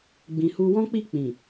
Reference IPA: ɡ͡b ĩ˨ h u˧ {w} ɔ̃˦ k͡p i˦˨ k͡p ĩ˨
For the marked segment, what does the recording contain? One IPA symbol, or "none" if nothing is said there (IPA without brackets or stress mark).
w